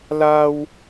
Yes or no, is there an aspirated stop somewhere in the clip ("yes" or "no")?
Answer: no